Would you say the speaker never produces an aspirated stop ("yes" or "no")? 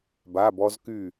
yes